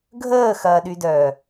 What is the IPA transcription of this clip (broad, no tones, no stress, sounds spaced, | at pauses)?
ɡʱ əː x ɐː ɗ y d œː